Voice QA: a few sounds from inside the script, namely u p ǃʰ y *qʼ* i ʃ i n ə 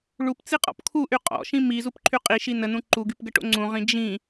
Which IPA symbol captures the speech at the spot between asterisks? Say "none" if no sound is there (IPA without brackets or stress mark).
qʼ